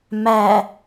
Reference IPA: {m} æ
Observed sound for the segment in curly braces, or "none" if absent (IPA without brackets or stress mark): m